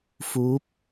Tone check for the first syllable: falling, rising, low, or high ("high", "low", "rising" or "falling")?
rising